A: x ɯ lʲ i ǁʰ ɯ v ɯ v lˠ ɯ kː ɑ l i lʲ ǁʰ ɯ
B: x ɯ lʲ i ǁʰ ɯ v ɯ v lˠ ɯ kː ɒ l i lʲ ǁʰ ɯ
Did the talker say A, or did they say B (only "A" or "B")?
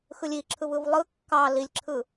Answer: A